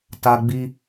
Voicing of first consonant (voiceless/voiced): voiceless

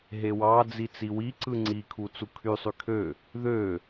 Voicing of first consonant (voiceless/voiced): voiced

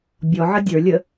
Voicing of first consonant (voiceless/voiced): voiced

